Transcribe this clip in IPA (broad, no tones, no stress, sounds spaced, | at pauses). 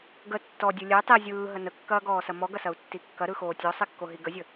ɡ ə tː ɔ dʲ ɯ lʲ ɛ tˤ i zʲ ɯː ɦ ə n ə kː ɐː ɡ ɔː s ɐ m ɔ ɡ ɐ s ɐ u̯ tː i kː ɐ ɾ ɯ x oː tʲ ɔ sˤ i kː o ɦ i ɡ ə zʲ ə